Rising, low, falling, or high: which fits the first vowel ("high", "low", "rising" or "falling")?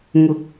rising